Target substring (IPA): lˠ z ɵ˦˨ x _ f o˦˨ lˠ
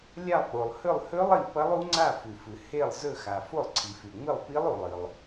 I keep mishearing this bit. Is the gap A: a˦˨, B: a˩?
B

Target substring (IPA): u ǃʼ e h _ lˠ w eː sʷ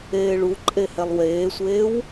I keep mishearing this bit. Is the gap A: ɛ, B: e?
A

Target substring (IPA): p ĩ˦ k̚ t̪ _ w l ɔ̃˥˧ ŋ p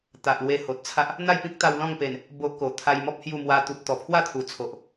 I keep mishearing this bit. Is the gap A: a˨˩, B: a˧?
B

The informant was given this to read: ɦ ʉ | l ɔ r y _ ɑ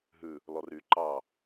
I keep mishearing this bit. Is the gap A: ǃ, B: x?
A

